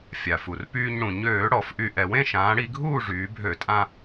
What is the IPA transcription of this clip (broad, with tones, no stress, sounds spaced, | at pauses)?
fʲ a˩ f u˩ r p yː˧ ɲ ɽ ũ˩ ɲ øː˧˩˧ ɽ ɔ˧˩˧ f ʔ y˧ ʔ ɛ˩ w ẽ˥˨ ʃ ãː˩˧ ɽ i˧ ɡʱ uː˥˨ ʐ yː˩˧ bʱ ø˧˩˧ tʼ ã˧